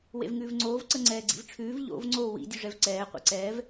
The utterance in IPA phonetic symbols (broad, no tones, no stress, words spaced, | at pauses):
wḛvŋʉːvŋ͡ǀoːv ǀəŋ͡ǀɛːɡ͡ǀḭvʈ͡ʂʰʉːv ʎo̰v ŋ͡ǀoːwḭ dʲʉʐɛvǀɛː qʷḛǀɛːv